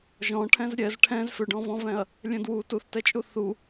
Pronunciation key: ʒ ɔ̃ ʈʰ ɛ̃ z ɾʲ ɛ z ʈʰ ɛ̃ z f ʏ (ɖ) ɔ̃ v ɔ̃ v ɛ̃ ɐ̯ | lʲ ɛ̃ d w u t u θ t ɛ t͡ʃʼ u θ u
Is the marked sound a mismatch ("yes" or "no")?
no